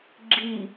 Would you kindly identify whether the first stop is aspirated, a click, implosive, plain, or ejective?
click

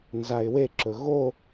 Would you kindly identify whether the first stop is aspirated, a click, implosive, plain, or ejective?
click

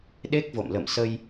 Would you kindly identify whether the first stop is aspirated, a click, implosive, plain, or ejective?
implosive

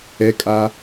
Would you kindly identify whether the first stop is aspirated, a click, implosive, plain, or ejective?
ejective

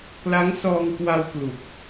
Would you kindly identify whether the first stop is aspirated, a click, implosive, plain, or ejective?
plain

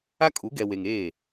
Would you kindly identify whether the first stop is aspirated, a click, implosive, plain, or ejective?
ejective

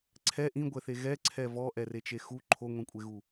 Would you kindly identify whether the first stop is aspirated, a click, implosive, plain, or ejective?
click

